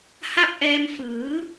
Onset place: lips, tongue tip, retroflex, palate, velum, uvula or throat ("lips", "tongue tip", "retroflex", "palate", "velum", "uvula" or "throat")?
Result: throat